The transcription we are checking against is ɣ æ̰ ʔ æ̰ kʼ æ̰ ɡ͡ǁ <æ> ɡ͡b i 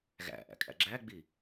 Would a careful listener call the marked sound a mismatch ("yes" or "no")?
no